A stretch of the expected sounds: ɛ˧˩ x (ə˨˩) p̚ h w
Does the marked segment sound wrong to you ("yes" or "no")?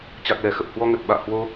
no